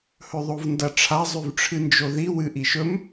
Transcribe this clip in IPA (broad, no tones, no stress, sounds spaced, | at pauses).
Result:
h ɵ ðˤ o v n d ɐ ʈ͡ʂʰ a zˤ ʉ v ʈ͡ʂʰ ɨ n d͡ʒ o ð i w ɨ ʔ i ʃ ɵ m